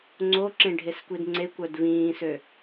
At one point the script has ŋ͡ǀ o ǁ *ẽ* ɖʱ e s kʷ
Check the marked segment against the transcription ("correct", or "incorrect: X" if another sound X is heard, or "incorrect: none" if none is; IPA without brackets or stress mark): correct